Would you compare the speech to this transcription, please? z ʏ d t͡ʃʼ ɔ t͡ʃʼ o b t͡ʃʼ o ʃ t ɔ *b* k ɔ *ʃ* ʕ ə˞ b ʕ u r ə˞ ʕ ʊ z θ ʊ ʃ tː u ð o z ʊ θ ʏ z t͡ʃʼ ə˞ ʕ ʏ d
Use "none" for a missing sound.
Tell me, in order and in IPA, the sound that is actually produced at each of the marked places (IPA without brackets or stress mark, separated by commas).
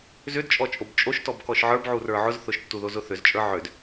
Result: b, ʃ